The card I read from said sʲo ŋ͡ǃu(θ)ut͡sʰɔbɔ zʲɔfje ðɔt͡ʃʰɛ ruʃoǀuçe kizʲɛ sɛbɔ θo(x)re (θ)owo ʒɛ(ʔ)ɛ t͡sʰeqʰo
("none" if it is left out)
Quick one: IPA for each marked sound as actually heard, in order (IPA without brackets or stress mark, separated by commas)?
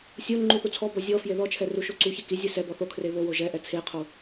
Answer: θ, kʰ, β, ʔ